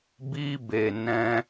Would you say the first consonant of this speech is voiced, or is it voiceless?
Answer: voiced